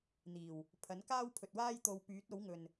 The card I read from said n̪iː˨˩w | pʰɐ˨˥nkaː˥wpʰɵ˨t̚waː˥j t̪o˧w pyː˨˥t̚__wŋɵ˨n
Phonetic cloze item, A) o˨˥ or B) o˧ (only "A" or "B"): A